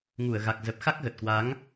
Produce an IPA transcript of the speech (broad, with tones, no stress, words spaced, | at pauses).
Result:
ŋu˧˩ə̯ɣa˨˩k̚zə˨˩p̚ xa˦˥k̚ɣə˨˩t̚kwa˨˦ŋ